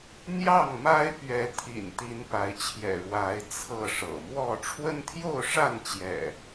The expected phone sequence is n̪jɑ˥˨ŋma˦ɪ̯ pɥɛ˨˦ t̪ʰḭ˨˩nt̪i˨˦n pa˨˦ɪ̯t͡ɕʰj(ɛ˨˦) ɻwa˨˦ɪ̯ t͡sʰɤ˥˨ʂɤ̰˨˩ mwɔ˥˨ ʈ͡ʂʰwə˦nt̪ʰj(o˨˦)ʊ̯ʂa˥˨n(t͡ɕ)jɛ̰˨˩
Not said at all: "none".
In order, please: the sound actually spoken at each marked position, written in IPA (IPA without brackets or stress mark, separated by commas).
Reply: ɛ̰˨˩, o˥˨, t͡ɕ